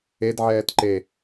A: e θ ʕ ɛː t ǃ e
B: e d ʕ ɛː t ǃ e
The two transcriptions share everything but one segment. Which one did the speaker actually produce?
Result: B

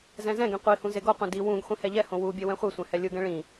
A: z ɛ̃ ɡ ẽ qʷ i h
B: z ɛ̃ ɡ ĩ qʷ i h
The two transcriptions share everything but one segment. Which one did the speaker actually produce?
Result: A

